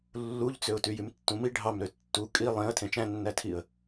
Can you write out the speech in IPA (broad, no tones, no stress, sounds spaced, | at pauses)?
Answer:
lː u ʎ t͡s ø ʊ̯ t y j y m tː ũ m i ɖʱ ɑ m ɾ ø tː u kʼ i lˠ ẽ ə̯ tʰ ẽ t͡ʃ æ̃ nː æ tʰ i ə̯